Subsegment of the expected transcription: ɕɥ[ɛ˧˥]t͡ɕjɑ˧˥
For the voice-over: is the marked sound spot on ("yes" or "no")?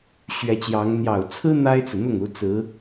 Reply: yes